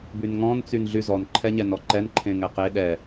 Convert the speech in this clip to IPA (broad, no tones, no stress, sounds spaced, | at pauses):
b y n ŋ ɔ̃ n t͡s y n ɮ y z ɔ n ǃʰ ɛ ɲ ɛ n ɔ ǃ ɛ n ǃʰ ẽ ŋ ɛ q e ɗ ɛ